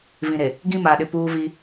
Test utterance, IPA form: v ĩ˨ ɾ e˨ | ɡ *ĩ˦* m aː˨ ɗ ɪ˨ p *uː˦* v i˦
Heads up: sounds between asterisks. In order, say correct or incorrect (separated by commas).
correct, correct